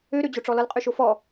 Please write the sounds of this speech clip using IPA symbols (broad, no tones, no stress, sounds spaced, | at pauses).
ø ɾ ø d͡ʑ o ʈ͡ʂ ɔ l ʌ l qʼ ø ʃ o f ɔ